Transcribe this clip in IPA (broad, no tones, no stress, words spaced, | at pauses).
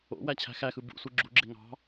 o̰ wæt͡ɕʰæ̤xæxɯ bṵsʷɯ ɡ͡ǁuɡ͡ǁe ŋɑ̤